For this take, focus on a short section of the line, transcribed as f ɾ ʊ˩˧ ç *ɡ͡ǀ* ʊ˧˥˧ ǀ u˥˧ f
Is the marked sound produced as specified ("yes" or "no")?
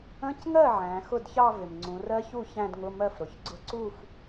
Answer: yes